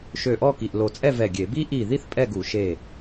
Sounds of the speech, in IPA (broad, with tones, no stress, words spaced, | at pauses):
ʃø˧˩ʔɔ˥˨ ki˩˧˩ʔlo˧˩ t͡sʼɛ˥˨vɛ˧˩ ɡʲe˧˩˧ bi˦ʔi˧˩ði˥˨θ pʼɛ˥˨ɡu˧˩˧ ʃe˧˩